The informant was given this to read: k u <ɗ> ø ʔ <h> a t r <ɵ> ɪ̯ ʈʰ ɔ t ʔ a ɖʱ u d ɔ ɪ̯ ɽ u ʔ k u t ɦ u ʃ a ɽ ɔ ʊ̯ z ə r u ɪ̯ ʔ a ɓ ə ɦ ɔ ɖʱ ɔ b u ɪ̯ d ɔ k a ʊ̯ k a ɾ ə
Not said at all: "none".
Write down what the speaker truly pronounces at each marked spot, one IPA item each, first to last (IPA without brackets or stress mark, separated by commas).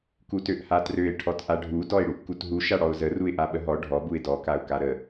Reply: t, h, ø